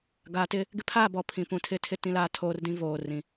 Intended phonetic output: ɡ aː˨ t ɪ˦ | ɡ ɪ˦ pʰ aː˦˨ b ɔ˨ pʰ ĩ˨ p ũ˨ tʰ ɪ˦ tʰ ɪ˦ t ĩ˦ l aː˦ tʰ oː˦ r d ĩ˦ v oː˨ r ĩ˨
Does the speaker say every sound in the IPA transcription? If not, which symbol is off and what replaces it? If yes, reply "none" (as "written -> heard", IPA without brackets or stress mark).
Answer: none